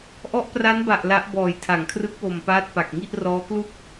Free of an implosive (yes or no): yes